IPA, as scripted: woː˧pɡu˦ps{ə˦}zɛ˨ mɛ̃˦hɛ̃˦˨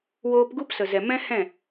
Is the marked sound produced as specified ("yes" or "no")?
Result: no